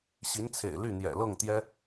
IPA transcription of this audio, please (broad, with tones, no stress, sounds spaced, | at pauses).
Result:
ɕ i˧˥ n t͡sʰ ḛ˨˩ ɪ̯ l y˥˩ n̪ j ɛ̰˨˩ l ɤ˥˩ ŋ t̪ j ɛ˥